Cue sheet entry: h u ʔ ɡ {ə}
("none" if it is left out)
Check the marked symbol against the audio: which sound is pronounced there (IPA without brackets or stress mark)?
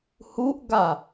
a